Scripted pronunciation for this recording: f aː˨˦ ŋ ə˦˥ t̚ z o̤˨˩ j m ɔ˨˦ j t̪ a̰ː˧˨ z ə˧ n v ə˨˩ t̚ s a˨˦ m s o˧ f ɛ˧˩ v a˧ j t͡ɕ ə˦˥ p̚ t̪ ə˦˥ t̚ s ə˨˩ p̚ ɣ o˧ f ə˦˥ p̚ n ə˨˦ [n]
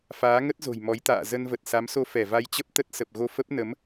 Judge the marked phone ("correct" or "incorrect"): incorrect